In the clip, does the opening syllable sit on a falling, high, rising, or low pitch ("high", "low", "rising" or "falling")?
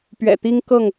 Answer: low